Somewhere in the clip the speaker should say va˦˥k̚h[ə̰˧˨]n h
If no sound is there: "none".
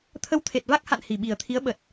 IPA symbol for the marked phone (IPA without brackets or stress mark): a̰˧˨